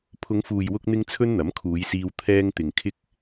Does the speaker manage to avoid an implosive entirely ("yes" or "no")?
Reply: yes